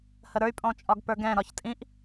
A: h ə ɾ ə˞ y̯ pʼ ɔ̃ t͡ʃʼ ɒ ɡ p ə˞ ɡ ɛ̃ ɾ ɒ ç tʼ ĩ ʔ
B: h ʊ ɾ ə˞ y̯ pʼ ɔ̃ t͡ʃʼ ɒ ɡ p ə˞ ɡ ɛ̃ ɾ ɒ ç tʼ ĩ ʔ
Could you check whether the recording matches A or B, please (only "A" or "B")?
A